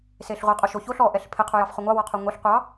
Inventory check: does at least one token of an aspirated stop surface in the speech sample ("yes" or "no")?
yes